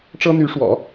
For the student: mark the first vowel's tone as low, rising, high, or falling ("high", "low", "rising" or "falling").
high